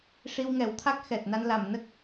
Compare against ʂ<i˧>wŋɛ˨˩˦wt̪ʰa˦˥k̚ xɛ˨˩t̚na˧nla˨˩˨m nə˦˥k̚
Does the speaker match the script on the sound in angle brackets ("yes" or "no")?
yes